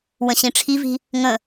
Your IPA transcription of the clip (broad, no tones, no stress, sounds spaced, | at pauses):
w ə̃ ɕ ĩ ʈ͡ʂʰ i v i̤ | ŋ ə̃